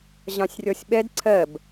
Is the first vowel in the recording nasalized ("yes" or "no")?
yes